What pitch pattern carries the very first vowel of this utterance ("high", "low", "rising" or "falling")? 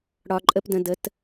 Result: low